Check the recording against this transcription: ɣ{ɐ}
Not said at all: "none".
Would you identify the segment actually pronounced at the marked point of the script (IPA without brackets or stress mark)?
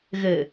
ə